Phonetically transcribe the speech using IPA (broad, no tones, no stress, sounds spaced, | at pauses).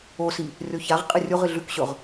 o s i | rʲ o ç a ʁ qʼ ɨ rʲ u ʁ ɨ ɮ ʉ k ɕ ɵ ʁ